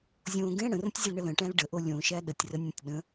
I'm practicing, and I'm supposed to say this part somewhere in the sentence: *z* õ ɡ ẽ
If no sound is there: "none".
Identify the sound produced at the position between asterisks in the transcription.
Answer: zʲ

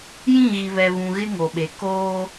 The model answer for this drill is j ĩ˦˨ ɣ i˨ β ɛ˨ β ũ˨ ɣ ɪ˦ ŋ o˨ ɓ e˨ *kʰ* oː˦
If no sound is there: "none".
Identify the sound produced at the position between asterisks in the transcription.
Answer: k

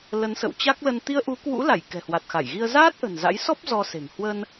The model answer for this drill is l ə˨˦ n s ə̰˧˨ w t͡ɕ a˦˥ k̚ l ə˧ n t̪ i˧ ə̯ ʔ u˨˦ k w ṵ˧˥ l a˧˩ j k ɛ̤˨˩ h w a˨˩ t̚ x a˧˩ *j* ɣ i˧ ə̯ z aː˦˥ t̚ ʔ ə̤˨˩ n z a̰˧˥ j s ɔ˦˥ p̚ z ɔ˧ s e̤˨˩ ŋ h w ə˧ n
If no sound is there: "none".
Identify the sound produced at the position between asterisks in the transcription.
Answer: j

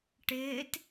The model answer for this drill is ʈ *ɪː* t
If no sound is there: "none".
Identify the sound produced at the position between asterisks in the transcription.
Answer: ɪː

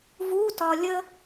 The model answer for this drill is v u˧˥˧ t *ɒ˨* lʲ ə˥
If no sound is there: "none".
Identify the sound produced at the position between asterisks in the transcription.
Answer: ɒ˨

